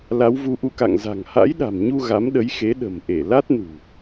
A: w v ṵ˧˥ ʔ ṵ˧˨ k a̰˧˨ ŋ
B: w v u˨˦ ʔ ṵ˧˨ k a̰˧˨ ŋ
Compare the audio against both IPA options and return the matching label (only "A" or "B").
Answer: B